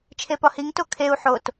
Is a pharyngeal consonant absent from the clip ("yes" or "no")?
no